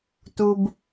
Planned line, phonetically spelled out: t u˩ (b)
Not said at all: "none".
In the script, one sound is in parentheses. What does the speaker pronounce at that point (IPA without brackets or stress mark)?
b